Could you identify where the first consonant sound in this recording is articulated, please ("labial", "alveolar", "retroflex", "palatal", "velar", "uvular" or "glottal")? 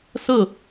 alveolar